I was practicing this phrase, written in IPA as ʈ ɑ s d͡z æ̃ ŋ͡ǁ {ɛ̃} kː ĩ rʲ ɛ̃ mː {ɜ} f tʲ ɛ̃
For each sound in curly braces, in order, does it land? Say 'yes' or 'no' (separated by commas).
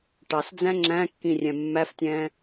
no, no